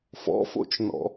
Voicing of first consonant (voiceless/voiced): voiceless